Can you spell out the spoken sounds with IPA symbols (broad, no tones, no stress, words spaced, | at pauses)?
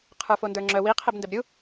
qʰə˞fondə˞ŋ͡ǁœ wi qʰɛbndɛbɾʲu